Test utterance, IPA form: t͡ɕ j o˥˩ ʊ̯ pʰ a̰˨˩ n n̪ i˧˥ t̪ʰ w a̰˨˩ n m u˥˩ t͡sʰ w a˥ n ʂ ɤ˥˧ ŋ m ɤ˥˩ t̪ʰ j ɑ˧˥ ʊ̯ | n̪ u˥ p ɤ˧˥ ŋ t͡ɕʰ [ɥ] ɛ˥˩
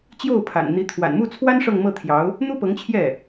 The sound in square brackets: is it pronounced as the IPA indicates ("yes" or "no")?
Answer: no